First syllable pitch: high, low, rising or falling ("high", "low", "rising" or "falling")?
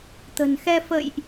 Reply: low